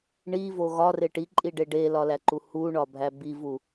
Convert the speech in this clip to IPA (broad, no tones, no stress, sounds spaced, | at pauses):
ɳ i v o ɣ ɒ r e ʈ i ǃʼ i ɖ e ɖ e l ɒ l æ ǃ u h u ɳ ɒ bʱ æ b i v u